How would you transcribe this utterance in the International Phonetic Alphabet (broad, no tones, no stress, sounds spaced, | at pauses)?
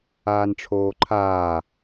aː n ʈ͡ʂʰ oː ǃʰ aː